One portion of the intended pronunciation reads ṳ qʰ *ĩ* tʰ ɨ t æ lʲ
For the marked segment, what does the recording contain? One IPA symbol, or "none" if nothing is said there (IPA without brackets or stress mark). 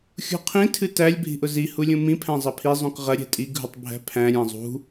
ĩ